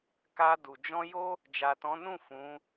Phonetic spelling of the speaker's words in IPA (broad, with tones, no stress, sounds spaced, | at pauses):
k a˧ d u˨ d͡ʒ ɔ̃˧ j o˦ | d͡ʒ a˨ t ɔ̃˨˦ n ũ˦˨ f ũ˨˦